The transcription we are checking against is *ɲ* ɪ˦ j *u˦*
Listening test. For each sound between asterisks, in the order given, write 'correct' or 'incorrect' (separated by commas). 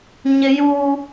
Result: correct, incorrect